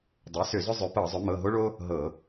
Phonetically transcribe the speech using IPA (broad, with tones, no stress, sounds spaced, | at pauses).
dˤ e˩˥ s ʏ˧˩˧ z ʏ˦ zˤ ʏ˩˥ p ɤ˧˩˧ zˤ ʏ˩˥ m ɤ˩˧˩ ɦ o˦ ɭ o˦ | ɦ ɤ˧˩˧